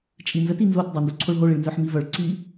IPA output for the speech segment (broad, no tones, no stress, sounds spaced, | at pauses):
t͡ʃʼ i n z ə t i n z o t dˤ œ n d o ǀʰ o ɭ ɦ o ɭ i ɭ n z œ ħ m i v œ ɭ ǀ i